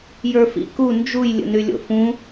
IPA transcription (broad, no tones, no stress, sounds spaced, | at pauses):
j ə˞ f ḭ k u n d͡ʒ u j lʲ ə̰ n y lʲ o̰ f ũ